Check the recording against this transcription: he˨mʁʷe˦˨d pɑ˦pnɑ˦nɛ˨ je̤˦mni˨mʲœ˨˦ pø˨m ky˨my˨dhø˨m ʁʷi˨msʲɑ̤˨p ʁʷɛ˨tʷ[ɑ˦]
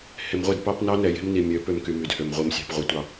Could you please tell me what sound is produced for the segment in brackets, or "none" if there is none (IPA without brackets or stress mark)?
ɑ˨